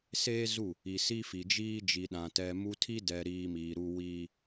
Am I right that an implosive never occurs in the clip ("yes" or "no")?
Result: no